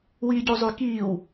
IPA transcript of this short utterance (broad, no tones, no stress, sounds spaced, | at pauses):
w iː ɟ u zˤ y k iː w